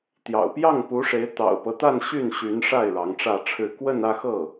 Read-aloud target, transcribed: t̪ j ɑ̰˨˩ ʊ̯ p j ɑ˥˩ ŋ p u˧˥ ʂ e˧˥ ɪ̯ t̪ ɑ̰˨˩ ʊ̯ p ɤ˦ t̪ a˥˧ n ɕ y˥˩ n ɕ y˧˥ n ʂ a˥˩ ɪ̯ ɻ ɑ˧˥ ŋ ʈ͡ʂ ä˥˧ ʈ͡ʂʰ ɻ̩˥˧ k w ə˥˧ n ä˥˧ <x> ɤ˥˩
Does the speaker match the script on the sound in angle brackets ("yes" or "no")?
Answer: yes